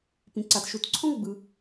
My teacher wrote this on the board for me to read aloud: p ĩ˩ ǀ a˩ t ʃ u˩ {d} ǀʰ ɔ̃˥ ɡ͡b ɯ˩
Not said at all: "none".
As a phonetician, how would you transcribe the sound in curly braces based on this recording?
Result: t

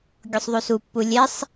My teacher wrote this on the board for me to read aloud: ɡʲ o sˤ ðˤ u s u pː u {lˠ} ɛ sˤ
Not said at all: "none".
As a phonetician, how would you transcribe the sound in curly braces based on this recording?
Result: lʲ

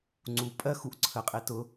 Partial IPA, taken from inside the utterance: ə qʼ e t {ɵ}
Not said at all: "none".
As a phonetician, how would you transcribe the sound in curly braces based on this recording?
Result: ʊ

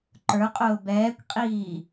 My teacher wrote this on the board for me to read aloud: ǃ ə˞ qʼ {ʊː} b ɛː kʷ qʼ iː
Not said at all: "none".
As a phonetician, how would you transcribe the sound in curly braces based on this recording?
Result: ʊː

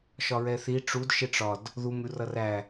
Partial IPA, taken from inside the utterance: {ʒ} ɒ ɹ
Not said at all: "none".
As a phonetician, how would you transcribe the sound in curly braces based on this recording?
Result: ʃ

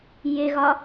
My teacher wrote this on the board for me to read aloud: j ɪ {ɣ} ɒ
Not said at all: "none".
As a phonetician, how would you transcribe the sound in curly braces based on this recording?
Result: ɣ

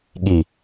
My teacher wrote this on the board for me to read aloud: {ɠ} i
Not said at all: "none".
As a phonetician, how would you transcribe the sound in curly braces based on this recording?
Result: ɠ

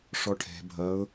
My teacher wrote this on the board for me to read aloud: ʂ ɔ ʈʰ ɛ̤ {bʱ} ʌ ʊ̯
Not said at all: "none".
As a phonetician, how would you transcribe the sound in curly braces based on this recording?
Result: bʱ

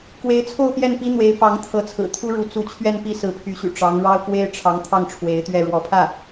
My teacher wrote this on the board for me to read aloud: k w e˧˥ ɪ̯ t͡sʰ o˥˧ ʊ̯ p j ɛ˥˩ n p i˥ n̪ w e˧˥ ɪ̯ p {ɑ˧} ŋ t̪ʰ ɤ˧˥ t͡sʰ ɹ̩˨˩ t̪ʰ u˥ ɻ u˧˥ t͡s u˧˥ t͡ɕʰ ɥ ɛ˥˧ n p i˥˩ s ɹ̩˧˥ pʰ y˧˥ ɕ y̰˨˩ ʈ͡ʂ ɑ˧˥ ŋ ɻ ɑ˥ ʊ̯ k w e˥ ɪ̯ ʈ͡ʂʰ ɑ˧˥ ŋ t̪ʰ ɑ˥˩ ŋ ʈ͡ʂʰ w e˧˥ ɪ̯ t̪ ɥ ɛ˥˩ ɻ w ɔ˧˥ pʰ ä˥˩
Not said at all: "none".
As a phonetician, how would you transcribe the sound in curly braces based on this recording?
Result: ɑ˧˥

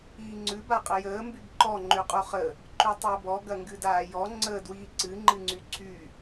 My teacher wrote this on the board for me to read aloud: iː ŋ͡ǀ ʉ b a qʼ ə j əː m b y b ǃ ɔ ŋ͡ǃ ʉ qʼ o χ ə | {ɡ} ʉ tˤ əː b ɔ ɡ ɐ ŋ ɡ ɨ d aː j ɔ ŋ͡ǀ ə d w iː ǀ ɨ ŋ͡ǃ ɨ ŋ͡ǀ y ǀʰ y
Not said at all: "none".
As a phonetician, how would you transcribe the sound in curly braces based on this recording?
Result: ǃ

